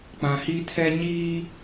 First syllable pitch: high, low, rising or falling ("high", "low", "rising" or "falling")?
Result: low